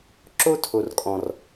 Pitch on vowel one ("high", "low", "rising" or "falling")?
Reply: high